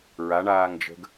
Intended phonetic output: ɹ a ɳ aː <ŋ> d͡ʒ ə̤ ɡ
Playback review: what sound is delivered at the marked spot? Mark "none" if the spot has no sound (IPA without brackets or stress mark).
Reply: ŋ